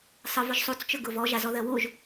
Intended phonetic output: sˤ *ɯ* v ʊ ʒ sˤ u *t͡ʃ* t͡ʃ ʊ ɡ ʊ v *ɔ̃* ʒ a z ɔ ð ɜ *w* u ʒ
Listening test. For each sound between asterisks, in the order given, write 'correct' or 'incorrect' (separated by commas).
correct, incorrect, incorrect, correct